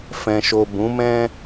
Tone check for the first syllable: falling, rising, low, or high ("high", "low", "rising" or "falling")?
low